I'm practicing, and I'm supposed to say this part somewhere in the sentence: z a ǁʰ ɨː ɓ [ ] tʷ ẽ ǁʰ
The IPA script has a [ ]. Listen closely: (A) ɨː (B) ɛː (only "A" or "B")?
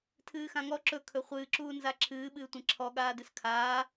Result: A